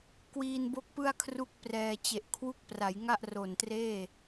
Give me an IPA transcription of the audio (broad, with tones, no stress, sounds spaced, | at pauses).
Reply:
k w iː˧ n b o˦˥ k̚ p ɯ˥˩ a̯ kʰ r u˥˩ k̚ p r ɛː˧ t͡ɕ e˨˩ ʔ kʰ w u˦˥ k̚ p r a˩˦ j ŋ a˥˩ ʔ r o˨˩ n t r eː˥˩